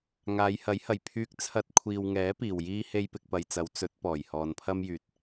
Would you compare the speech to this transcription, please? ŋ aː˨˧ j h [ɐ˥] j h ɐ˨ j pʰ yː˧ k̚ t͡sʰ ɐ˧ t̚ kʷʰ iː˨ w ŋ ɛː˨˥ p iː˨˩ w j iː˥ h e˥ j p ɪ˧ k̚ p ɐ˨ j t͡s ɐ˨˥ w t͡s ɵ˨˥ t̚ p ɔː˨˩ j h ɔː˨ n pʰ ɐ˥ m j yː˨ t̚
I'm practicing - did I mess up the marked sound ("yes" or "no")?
yes